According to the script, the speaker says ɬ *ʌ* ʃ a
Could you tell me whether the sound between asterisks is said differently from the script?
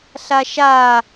yes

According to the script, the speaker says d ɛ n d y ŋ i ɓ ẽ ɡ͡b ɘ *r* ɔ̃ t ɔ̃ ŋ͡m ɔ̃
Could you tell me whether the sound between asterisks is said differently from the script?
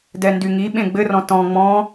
no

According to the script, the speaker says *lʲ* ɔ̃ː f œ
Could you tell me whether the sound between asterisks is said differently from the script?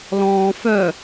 yes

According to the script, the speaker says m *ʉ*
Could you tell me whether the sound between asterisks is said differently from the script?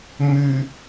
no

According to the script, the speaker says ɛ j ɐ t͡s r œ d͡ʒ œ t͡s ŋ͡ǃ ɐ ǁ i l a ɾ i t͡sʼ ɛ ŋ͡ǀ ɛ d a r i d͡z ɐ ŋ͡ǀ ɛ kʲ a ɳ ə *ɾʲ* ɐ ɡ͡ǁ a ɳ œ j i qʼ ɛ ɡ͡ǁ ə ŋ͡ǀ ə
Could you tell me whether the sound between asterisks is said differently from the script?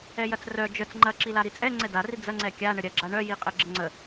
no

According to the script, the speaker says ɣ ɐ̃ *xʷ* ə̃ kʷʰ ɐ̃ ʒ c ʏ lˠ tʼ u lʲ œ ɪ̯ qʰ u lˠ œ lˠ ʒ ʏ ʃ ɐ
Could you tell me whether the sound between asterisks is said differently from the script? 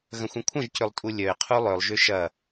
no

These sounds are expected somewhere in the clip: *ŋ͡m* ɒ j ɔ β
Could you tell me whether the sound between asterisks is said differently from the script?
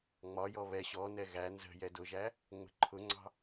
no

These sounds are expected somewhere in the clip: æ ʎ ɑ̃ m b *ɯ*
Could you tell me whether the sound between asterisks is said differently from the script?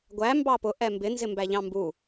yes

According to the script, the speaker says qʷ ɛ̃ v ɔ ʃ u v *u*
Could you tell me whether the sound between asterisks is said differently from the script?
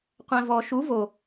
yes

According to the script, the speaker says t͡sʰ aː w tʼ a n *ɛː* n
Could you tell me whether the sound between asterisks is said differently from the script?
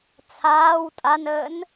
yes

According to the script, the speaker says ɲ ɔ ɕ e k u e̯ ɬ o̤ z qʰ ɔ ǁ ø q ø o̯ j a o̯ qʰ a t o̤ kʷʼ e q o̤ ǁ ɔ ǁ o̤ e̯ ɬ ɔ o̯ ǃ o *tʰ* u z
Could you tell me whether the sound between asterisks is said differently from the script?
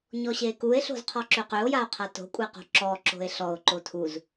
no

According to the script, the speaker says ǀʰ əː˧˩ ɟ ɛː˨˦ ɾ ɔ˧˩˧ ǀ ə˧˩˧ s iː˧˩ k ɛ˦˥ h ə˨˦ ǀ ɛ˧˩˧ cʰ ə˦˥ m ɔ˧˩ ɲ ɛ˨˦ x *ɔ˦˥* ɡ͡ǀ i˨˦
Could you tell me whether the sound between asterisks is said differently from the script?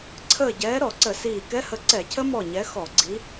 yes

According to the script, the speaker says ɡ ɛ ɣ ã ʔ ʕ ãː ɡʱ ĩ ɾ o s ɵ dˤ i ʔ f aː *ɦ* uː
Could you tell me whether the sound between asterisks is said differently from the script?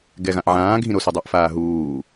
no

